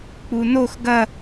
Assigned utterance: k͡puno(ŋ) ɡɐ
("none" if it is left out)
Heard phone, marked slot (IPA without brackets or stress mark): x